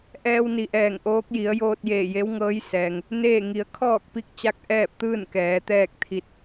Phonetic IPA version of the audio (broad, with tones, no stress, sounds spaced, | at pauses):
ʔ ɛː˧ w n i˩˧ ʔ ɛː˧˩ ŋ ʔ oː˧˥ k̚ j i˩˧ ə̯ j oː˧ t̚ j eː˧˩ j e˧˥ w ŋ ɤː˧˥ j s ɛː˩ ŋ | n eː˥˨ ŋ i˩˧ ə̯ kʰ ɔː˥˨ k̚ p i˧˥ k̚ t͡ɕ a˧˥ k̚ ʔ ɛː˥˨ p̚ t̪ ɯː˥˨ n k ɛː˩˧ t̪ ɛː˥˨ k̚ t̪ʰ i˧˥ t̚